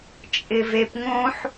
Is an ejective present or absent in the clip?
present